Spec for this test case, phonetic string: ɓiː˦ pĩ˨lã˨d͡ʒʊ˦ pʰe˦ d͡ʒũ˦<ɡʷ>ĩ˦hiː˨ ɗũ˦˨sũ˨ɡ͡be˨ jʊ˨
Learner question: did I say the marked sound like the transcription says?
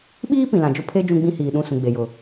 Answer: no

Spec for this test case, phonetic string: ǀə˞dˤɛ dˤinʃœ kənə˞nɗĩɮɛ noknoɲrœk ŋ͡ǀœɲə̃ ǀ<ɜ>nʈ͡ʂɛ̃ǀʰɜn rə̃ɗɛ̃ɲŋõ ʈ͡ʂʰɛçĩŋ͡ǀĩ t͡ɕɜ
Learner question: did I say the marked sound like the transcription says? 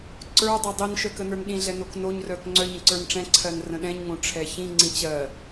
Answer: no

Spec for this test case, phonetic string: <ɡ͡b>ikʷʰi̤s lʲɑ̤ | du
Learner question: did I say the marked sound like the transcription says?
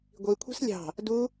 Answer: no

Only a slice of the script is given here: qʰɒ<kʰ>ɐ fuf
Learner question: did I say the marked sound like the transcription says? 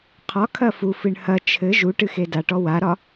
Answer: yes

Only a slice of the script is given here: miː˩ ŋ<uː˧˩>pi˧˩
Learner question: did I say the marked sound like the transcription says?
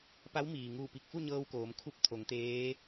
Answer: yes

